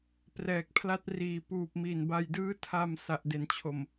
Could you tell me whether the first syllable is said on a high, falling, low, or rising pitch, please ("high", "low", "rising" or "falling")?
low